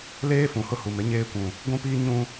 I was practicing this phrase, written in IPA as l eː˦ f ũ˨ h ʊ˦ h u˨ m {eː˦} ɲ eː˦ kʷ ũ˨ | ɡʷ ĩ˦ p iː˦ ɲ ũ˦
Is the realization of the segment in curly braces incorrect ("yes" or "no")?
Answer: yes